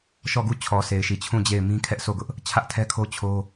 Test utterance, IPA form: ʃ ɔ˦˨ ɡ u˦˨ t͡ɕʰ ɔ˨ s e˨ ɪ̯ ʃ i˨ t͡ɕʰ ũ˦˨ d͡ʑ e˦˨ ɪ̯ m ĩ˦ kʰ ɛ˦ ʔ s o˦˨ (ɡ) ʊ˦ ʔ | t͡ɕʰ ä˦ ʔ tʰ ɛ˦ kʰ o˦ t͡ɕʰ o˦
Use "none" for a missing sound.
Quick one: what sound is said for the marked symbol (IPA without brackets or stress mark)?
ɡ